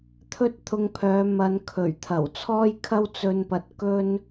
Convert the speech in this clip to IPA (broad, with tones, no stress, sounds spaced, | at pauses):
t̪ʰ ɵ˥ t̚ t̪ʰ ʊ˧ ŋ pʰ œː˨˧ m ɐ˨˧ n kʰ ɵ˨˩ ɥ t̪ʰ ɐ˨˩ w t͡sʰ ɔː˥ j kʰ ɐ˥ w t͡s ɵ˧ n p ɐ˨ t̚ k ɵ˥ n